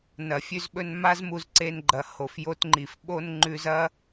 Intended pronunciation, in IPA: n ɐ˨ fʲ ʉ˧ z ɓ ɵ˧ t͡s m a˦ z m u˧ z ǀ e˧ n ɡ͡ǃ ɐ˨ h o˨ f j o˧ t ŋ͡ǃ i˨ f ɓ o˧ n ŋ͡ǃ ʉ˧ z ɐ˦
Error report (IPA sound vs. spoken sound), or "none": t͡s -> n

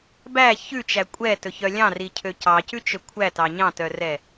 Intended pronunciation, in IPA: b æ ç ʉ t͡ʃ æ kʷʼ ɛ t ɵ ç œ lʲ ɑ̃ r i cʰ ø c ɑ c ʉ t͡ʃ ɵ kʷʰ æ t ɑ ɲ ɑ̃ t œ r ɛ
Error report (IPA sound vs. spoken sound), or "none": none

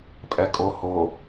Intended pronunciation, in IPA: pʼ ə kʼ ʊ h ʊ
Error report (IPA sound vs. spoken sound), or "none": ə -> ɛ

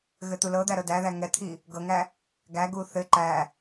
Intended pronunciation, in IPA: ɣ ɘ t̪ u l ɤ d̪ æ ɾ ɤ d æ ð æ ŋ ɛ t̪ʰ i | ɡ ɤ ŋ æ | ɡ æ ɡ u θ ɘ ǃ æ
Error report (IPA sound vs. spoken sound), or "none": none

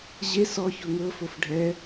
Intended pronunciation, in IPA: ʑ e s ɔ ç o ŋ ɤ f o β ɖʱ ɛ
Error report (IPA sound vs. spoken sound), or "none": β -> f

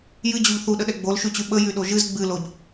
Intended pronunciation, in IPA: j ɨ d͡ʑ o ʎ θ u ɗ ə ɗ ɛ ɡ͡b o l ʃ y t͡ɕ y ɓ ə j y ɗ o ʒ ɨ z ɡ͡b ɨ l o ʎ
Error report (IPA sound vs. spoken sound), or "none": none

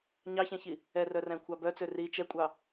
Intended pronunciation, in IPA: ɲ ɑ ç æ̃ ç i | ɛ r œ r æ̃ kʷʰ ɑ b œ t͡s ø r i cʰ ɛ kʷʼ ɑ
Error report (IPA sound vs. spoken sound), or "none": cʰ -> t͡ʃ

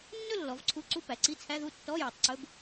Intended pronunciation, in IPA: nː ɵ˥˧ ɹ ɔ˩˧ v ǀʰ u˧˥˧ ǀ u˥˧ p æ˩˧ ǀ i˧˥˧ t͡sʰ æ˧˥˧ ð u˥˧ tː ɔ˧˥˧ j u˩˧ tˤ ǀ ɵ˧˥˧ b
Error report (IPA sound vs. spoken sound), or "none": ɹ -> lː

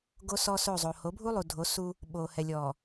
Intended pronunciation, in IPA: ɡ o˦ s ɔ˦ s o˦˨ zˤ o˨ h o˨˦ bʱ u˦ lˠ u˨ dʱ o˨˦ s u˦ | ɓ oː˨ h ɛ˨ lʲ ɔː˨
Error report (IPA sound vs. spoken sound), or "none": none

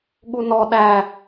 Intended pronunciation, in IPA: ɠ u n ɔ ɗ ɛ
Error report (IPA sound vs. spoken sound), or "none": ɛ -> æ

